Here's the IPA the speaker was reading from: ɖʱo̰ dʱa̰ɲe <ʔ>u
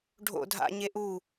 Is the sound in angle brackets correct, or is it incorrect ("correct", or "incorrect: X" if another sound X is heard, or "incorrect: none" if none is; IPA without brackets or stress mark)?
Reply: correct